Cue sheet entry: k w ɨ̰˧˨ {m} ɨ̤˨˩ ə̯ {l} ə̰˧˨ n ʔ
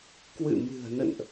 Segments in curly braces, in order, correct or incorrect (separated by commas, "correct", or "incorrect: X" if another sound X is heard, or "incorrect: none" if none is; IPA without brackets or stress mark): correct, incorrect: n